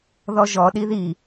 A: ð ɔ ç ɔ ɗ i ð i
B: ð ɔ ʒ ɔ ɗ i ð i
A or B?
B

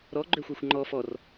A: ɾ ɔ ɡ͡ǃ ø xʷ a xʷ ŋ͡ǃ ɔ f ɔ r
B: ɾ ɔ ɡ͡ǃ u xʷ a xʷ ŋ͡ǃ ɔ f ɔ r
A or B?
A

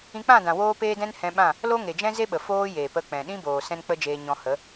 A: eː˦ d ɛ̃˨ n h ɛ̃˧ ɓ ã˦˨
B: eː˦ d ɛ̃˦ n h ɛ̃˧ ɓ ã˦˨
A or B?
B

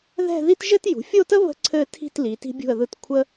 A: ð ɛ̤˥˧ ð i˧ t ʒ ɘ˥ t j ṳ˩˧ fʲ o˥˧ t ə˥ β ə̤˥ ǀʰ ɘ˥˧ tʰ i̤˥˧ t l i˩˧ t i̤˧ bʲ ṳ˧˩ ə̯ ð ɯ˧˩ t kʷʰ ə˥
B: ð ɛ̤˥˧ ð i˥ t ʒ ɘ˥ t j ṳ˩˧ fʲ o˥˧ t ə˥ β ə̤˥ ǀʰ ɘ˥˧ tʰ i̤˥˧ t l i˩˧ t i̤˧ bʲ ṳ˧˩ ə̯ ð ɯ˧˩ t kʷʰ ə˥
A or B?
B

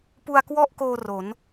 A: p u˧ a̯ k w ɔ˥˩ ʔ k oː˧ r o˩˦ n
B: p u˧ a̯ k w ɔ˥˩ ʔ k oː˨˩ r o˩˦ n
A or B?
A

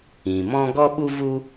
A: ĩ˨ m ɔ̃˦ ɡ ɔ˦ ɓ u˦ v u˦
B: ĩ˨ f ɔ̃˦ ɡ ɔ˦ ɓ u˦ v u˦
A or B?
A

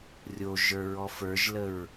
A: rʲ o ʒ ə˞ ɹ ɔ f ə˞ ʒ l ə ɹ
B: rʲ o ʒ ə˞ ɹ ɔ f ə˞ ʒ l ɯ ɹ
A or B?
A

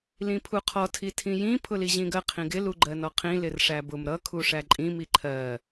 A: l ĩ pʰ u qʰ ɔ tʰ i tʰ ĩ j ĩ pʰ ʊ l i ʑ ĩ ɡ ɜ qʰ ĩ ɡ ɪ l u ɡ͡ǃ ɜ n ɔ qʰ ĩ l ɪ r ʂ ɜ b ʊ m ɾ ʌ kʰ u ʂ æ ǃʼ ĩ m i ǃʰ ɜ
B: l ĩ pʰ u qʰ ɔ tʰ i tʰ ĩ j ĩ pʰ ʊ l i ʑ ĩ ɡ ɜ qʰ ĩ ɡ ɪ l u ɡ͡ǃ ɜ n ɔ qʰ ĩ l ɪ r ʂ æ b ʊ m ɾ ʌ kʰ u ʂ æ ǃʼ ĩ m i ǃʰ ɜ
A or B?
B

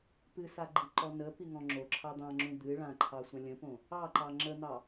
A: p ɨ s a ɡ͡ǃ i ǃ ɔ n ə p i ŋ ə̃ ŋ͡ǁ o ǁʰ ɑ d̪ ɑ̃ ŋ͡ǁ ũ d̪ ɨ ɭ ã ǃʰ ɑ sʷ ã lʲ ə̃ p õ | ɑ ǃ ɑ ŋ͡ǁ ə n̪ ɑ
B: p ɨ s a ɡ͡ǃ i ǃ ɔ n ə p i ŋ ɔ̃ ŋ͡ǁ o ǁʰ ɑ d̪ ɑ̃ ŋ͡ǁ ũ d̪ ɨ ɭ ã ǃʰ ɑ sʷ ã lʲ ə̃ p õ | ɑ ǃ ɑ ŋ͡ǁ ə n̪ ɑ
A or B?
B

